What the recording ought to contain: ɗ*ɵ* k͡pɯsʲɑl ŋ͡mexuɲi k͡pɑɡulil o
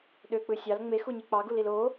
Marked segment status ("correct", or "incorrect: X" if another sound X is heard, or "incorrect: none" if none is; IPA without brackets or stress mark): incorrect: ø